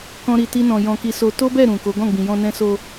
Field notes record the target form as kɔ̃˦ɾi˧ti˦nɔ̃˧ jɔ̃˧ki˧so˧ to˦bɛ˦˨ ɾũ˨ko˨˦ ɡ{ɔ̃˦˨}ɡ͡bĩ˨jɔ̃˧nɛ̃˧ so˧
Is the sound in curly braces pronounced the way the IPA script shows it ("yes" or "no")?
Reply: yes